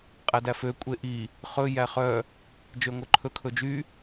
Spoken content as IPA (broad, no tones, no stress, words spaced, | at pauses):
qʼædæfø kʷʼeʔi | χɵ jæχœ | d͡ʒøŋʷœǃʰɵ kʰɵd͡ʒy